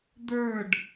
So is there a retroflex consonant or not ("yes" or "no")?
yes